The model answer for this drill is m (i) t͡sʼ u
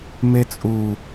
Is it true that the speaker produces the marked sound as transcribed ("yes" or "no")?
no